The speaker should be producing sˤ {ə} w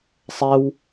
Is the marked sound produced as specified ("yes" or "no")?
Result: no